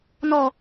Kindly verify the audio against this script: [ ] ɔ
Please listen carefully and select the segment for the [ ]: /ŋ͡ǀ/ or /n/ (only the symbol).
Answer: n